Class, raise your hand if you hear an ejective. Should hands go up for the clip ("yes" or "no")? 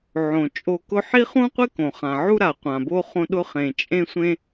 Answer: yes